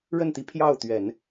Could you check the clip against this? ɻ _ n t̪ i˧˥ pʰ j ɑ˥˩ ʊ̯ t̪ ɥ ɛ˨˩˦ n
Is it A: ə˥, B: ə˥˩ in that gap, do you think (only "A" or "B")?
B